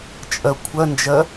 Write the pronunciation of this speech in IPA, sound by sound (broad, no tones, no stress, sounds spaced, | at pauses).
t͡ʃʼ ɜ kʷʰ ɜ n d͡ʒ ɜ